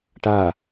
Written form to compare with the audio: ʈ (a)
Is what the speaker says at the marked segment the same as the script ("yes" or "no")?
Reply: yes